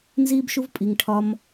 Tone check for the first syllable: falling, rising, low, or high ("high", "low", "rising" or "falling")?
high